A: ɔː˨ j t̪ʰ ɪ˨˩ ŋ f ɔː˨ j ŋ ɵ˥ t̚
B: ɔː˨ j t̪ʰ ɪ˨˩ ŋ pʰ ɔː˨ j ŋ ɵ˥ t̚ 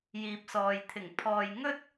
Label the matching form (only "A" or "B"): B